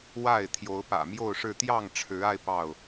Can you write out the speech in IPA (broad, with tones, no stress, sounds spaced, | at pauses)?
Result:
w a˥˨ ɪ̯ t̪ʰ j o˨˦ ʊ̯ p ä̰˨˩ m j o˥˨ ʊ̯ ʂ ɻ̩˥˨ t̪ j ɑ˥˨ ŋ ʈ͡ʂʰ ɻ̩˨˦ a˧ ɪ̯ p ɑ˥˨ ʊ̯